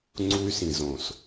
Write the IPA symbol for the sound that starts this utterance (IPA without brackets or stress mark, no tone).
ŋ͡ǀ